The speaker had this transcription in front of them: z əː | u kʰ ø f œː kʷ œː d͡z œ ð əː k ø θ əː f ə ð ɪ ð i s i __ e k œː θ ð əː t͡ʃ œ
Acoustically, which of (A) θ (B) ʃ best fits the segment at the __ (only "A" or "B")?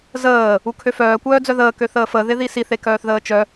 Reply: A